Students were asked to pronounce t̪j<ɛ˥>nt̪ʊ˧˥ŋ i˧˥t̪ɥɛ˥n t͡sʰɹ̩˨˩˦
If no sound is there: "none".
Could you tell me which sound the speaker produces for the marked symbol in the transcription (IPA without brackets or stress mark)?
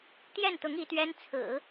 ɛ˥˩